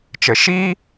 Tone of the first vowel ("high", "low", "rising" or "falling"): low